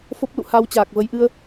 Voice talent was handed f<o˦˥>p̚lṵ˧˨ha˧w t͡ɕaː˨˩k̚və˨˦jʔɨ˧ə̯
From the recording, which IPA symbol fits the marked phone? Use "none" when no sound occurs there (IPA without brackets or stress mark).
o˦˥